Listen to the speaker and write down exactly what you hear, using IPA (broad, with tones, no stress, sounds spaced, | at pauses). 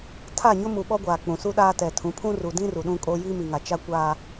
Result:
tʰ a˦˨ ɲ ʊ˦ m u˨ ɓ ɔ˦ ɡʷ aː˨ k͡p ũ˨ s u˦ ɗ aː˦ t ɛ˨ tʰ ũ˨˦ pʰ ũ˦ r u˨ d ĩ˦ r u˨ ɗ ũ˦ kʼ o˦ j i˦ m i˨ ŋ a˨ t͡ʃ a˦ kʷ aː˦